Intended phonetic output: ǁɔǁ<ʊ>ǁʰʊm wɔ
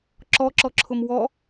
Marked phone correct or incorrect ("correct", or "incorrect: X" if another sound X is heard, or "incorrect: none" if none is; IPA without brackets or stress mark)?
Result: incorrect: ɔ